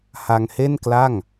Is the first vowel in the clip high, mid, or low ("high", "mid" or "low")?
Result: low